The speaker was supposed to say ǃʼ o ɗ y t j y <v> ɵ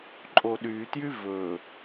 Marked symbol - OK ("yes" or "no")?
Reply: yes